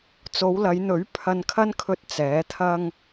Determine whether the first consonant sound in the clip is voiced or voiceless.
voiceless